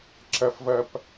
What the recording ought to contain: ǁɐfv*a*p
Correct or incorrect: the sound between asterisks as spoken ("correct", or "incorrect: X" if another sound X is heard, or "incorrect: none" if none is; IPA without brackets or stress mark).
incorrect: ɐ